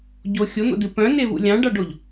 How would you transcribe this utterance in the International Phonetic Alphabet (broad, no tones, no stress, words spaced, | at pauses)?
ɟo xʲon̪o̰dɨ pœ̃nevṵ lʲɑ̃ɖɑɖoʎ